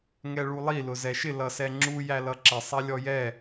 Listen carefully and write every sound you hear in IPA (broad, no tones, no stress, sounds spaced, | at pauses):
ŋ ɛ ɭ u lˠ i l ʊ z ɛ ʃ ɪ l ʌ s ɛ ŋ͡ǁ u j æ l ʌ ǁ ɪ sˤ ɛ lʲ ɔ j ɛ